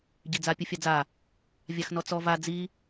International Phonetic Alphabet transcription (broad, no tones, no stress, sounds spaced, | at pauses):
ɟ i d͡z a pʲ ɯ fʲ a d͡z a | vʲ a x n ɔ t͡s ɔ v a d͡z i